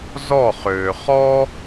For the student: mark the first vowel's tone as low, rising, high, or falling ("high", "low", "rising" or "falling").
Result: falling